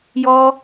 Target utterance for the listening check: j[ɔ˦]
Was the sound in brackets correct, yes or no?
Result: yes